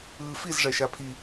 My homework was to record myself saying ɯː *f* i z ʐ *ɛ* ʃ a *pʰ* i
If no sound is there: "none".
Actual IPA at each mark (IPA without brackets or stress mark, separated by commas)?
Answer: f, ɛ, pʰ